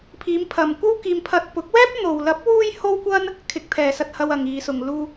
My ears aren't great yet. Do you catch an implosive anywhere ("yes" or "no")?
no